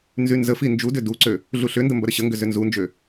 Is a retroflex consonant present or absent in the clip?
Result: absent